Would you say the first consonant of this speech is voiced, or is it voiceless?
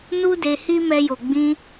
voiced